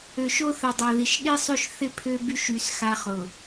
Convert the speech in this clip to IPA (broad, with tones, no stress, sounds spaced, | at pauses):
ø˨ ʃ o˦ θ ə˨ dˤ a˨ ð i˨ ʃ ɗ i˦ sˤ ø˦ ʃ θ ɪ˦˨ pʰ ø˦ b y˦ ʃ y˨ s x a˦ χ ʊ˨